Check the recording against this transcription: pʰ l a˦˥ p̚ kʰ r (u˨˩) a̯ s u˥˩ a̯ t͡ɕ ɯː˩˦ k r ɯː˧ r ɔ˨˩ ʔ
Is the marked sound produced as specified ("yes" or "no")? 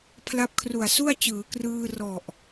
yes